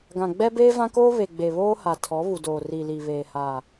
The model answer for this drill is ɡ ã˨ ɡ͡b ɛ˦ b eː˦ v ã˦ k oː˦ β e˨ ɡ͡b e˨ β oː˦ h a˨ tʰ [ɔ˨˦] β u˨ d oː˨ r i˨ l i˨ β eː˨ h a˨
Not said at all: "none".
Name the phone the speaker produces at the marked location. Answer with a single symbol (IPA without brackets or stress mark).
ɔ˨˦